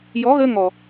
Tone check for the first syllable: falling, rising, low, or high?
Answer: rising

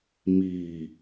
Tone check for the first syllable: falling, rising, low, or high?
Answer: low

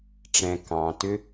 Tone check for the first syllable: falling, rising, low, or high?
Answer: low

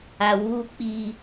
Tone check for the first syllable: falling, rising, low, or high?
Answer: low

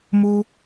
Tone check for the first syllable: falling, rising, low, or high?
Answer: high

